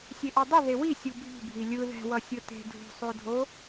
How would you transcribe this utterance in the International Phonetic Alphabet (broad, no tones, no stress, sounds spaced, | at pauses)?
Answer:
sʲ e ʔ o dˤ ʌ ð e w i sʲ u bʱ i̤ bʱ i lʲ ɯ ð ɛ̤ w ʌ sʲ ɯ t e̤ dʱ ṳ sˤ o dʱ o